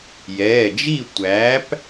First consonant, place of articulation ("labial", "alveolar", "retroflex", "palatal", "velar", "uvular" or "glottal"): palatal